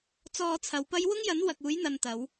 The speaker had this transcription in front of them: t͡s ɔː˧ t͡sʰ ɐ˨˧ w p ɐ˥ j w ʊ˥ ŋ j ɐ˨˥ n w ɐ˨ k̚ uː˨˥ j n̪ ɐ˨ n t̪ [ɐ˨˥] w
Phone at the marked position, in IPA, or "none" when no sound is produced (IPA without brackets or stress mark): ɐ˨˧